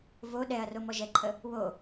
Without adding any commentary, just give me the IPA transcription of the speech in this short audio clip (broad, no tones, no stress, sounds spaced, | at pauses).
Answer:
v o ɗ ɛ ɐ̯ r o m ɔ ʒ ɛ ǃʰ ə | w o